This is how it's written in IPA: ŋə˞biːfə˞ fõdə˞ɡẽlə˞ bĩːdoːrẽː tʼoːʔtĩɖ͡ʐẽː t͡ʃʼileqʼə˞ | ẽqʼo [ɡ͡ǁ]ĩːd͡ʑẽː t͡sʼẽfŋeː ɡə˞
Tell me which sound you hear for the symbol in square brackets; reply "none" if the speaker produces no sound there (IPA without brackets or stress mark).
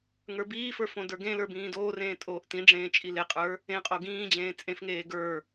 ɡ